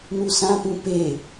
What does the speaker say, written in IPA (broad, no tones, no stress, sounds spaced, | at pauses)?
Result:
n u s ã p ũ p e